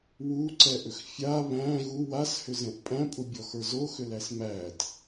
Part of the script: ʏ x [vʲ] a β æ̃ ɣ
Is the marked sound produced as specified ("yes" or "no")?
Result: no